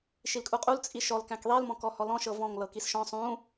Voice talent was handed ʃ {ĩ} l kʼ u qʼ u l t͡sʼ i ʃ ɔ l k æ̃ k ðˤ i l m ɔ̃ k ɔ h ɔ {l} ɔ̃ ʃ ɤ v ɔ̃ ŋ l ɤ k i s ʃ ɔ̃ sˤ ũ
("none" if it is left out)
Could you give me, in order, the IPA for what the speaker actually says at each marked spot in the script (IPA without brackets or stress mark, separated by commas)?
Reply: i, l